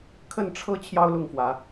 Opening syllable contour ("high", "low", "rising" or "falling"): falling